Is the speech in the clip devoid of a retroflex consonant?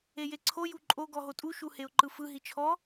yes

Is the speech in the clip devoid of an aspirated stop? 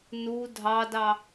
yes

